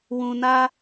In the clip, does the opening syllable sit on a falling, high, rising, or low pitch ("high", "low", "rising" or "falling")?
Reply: low